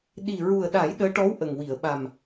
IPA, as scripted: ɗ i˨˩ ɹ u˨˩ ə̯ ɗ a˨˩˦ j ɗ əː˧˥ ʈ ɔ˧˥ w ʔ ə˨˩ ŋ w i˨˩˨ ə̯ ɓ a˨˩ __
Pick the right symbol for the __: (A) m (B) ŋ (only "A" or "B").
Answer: A